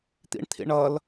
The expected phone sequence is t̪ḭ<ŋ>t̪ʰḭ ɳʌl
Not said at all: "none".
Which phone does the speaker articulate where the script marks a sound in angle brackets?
ɳ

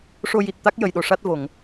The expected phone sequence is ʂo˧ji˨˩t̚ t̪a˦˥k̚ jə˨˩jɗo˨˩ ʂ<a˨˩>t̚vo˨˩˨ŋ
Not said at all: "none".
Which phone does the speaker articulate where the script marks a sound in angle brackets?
a˦˥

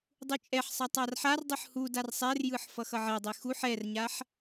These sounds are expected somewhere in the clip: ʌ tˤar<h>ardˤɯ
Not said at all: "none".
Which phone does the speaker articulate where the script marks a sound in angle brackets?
ħ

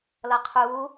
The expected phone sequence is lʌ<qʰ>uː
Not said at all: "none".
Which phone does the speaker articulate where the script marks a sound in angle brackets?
qʰ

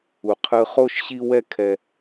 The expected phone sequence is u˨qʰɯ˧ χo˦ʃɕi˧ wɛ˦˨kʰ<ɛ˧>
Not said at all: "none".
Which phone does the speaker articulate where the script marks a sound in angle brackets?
ɛ˨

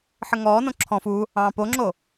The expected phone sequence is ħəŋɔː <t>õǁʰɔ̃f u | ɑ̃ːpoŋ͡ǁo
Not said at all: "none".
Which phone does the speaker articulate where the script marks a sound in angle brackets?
n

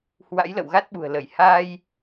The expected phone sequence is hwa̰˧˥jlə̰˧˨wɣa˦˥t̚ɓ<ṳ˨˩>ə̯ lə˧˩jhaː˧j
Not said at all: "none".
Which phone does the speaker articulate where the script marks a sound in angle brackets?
ṳ˨˩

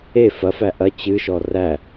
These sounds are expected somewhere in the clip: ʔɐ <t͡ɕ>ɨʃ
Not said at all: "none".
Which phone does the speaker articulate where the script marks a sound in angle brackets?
t͡ɕ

